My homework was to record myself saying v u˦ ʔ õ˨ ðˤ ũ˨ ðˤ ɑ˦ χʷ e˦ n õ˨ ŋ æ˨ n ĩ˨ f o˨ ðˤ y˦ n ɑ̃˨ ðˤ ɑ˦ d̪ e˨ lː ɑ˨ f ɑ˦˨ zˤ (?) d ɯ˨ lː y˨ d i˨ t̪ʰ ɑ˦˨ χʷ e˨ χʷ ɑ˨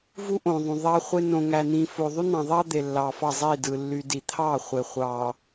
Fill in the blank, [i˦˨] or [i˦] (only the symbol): i˦˨